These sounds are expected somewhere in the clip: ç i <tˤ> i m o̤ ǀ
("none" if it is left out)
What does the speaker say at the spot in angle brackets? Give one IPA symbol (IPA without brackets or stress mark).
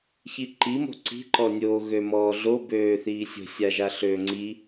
ǃ